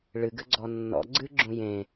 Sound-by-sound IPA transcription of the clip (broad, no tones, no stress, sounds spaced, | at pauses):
ɭ ɨ ɡ ɘ ɡ͡ǀ ɔ nː ɔ̰ ɡ͡ǀ ɨ ɡ͡ǁ ũ j ẽ